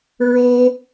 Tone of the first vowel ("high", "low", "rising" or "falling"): high